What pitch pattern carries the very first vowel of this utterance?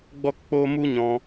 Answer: high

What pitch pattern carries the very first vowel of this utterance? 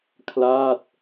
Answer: falling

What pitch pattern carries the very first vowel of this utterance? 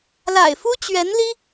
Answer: low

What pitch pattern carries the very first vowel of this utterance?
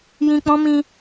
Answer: low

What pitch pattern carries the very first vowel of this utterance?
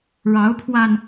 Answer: rising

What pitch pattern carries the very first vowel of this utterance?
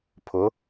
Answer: rising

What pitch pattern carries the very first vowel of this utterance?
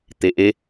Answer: rising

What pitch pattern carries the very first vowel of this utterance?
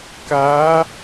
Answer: rising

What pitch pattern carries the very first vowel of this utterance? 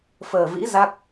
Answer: low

